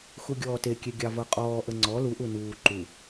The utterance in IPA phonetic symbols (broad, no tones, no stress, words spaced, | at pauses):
xuɡʲɔːtekʲe ɡʲɑvɤqʼɔːʔə ŋ͡ǀɔ luʔu nuː ǃu